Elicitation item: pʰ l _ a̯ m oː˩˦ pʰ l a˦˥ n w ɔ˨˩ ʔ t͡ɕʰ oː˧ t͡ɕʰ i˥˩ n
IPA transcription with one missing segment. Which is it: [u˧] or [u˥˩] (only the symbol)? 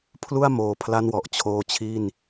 u˥˩